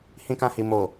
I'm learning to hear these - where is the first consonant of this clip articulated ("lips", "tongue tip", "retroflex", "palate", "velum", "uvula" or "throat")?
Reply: throat